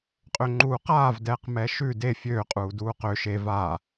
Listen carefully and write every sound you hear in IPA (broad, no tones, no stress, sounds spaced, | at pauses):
qʼ ø ŋ͡ǃ uː q aː v d ɛː q m ɛː ʃ ʉ d e fʲ øː qʼ uː d uː q ø ʃ e v aː